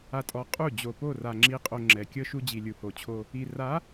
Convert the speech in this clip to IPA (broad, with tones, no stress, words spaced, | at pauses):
a˨tʼɔ˨˦ qʼu˦˨ d͡ʑo˨po˦˨ra˨ ŋ͡ǁi˨qʼo˨ ŋ͡ǁɛ˨kʲɤ˦ʃu˦ d͡ʑi˨lʲu˨ho˨ t͡ɕʰo˦ | i˨ra˨˦